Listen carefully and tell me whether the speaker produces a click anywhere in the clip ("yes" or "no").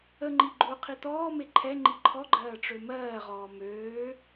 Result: yes